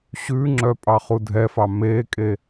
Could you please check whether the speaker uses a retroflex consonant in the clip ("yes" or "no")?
no